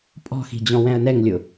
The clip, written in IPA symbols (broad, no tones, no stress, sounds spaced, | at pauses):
pʼ ɔ̤ x i̤ d͡ʑ ɔ̃ w ɛ̃ ə̯ n ɛ ŋ lʲ ʊ